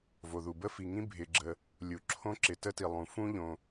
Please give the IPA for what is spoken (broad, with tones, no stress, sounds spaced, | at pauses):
v o˩ ð u˩ b ə˥ f i˩ ŋ ĩ˥ bʱ ɪ˩ ɡ͡ǁ ə˩ | lʲ u˩ ǁʰ õ˥ ǁ ɪ˩ t ə˥ t i˩ lˠ ũ˩ f ũ˥ ʎ õ˩